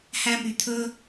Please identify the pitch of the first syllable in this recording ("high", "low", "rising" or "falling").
high